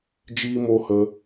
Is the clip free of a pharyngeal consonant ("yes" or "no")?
yes